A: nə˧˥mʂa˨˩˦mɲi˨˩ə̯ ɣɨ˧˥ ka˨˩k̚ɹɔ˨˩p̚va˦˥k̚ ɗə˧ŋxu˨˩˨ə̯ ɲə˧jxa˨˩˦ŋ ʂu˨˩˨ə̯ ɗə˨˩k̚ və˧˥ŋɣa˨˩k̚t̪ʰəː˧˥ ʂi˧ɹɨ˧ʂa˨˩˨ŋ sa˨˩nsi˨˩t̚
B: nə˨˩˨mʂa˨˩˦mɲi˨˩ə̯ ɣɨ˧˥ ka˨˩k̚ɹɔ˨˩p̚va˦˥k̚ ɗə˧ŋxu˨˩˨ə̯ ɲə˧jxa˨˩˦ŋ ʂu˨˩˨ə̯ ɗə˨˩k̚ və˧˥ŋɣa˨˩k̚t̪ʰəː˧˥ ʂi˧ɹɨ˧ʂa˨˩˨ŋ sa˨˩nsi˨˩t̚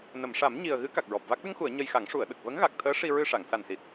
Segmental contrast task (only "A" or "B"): B